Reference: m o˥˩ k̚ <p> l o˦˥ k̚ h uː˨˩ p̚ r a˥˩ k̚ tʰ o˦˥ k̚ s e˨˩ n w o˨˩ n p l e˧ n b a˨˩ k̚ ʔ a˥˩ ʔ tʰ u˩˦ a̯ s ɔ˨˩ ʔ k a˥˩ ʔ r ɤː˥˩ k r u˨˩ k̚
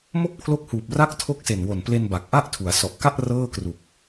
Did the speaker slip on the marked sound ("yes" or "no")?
yes